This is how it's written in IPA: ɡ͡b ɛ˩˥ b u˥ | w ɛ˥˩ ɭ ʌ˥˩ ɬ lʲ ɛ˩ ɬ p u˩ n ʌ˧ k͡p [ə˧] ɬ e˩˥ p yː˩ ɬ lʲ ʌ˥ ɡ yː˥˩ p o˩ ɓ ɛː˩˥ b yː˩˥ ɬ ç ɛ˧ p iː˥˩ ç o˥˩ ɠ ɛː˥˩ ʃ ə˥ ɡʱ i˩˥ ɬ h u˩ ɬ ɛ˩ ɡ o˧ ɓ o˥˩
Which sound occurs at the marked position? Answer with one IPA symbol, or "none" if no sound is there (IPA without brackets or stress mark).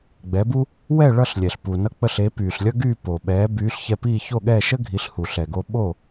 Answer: ə˧